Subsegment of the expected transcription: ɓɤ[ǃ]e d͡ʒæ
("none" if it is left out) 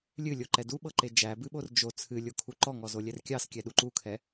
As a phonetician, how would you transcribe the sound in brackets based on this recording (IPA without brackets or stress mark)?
ǃ